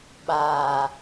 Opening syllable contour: low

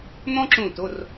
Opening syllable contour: high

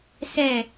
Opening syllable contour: falling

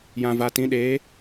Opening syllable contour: low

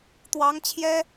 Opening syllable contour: rising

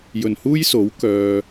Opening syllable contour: low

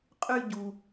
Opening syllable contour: high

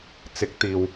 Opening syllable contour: rising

